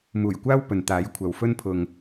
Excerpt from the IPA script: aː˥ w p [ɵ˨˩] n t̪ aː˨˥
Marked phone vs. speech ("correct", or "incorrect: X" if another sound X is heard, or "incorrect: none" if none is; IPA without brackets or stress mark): incorrect: ɵ˨